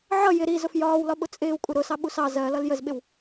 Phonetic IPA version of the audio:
ʕ ʌ j ɪ ɾ i z ʊ f j ɒː w l ɒ ɓ ʊ t͡sʼ ɪː w kʷʼ ɪ ɾ ʊ s ɑ ɓ u s ɑ z ɜ l ʌ l j ə z ɓ ɪ w

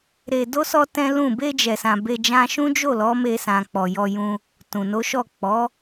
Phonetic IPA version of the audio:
ɾ e˧ d o˦ s ɔ˦ t ɛ̃˦ l ũ˦˨ b e˧ d͡ʒ ɛ˨ s ã˨ b e˧ d͡ʒ ã˧ ʃ ũ˦ d͡ʒ o˦˨ l ɔ˨˦ m e˧ s ã˨ k͡p ɔ˨ j ɔ˧ j ũ˧ | t ũ˨ n o˨˦ ʃ ɔ˦˨ k͡p ɔ˨˦

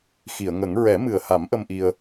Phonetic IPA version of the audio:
x i˨˩˨ ə̯ ŋ ə˨˩˦ ŋ ɹ ɛ˨˩˦ m ɨ˨˩ ə̯ h a˨˩˦ m ʔ ə˧ m ʔ i˧ ə̯

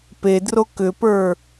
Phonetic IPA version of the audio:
p e d r o k ʏ p ə˞

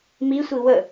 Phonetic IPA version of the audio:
m i sʷ i w ə

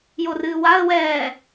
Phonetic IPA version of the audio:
j o r ɨː w a ə̯ w ɛː

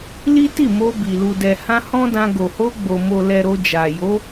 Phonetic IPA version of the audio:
l i˦ t i˦˨ m o˧ b i˨ l u˨ d ɛ˨ h ã˧ h ɔ̃˦ d ã˧ ɡ o˨ h o˧ ɡ͡b o˨ m o˨ l ɛ˨ ɾ o˧ d͡ʒ a˨ j o˨˦

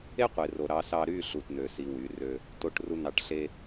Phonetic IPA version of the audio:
e˦ qʷ e˨ r o˨ ɾ ɑ˨ s ɑ˨ ɾ y˦˨ ɬ u˨ t n̪ ø˨ s i˨ w y˨˦ r ø˦ | t o˨ ʈ r u˨ n̪ ɑ˨ ʈ ɬ e˦

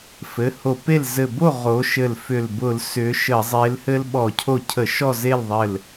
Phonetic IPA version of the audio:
f ɘ˩˧˩ h o˧˩˧ p e˥˨ l z ɘ˧˩ b o˥˨ ʁ o˨˦ ʃ ɘ˧˩ l f ʏ˧˩ l b ʊ˧˩˧ l s ʏ˨˦ ʃ ə˧˩˧ zˤ e˨˦ l h ɘ˦ l ɓ ɔ˧˩˧ cʰ o˧˩ cʰ ə˧˩˧ ʃ ɔ˥˨ z e˥˨ l ðˤ ɘ˧˩ l

